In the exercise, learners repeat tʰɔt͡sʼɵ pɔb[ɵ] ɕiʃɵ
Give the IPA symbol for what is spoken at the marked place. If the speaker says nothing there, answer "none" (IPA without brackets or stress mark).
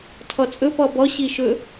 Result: ɔ